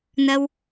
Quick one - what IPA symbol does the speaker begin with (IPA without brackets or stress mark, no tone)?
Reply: n̪